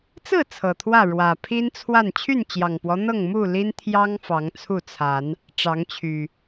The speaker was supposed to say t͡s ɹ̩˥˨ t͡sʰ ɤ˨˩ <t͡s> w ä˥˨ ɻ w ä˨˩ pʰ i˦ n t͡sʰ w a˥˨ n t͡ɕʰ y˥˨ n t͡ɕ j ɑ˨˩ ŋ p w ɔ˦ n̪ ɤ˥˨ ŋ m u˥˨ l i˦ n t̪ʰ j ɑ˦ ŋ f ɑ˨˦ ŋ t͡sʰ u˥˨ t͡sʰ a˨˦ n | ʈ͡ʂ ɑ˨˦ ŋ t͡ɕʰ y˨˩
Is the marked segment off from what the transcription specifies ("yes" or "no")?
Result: yes